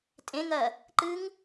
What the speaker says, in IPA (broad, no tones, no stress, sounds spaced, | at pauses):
tʼ ẽ ŋ ɜ | ǃ ɨ ŋ